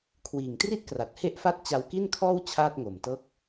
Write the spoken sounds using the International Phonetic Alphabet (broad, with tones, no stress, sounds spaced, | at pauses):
kʰ w iː˨˩ ŋ t r i˥˩ t̚ k r a˨˩ t̚ h e˥˩ ʔ f a˥˩ t̚ t͡ɕ a˧ w k i˥˩ n kʰ ɔː˥˩ w t͡ɕʰ aː˥˩ t̚ ŋ o˨˩ m t ɤː˥˩ k̚